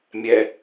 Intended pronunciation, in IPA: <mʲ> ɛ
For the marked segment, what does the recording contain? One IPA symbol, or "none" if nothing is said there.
mʲ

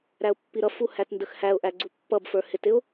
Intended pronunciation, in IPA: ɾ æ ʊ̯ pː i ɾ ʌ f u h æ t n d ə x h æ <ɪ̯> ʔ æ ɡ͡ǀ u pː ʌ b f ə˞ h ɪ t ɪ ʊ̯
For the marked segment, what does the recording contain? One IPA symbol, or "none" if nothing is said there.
ʊ̯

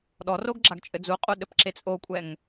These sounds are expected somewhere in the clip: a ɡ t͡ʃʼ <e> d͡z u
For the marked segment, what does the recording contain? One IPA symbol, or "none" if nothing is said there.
ɘ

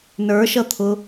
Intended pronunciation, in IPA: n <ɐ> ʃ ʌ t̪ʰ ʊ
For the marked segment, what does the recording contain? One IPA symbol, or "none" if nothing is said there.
ə˞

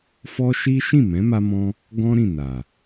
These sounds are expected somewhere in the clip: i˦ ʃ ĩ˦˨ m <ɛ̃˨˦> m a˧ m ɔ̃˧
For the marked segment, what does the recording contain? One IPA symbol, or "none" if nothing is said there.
ɛ̃˨˦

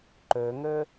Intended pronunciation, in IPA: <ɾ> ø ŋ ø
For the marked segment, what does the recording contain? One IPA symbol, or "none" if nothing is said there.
ǃ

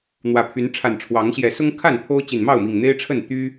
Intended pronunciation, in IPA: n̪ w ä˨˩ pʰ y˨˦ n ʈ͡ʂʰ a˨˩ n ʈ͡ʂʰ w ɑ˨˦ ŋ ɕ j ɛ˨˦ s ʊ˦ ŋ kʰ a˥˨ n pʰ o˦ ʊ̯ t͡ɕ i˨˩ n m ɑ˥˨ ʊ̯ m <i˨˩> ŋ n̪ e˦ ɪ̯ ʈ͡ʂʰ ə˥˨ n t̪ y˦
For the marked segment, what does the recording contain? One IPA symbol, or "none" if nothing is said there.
i˨˩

